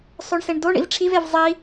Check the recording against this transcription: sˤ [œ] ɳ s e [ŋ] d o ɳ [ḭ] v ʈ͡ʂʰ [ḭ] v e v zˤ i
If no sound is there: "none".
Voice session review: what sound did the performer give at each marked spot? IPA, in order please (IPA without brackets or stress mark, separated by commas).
ɵ, ɳ, ḭ, i